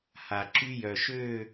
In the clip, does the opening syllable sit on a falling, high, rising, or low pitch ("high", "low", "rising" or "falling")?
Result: low